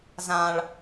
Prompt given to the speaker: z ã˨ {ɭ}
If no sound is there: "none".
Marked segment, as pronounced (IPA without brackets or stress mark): ɭ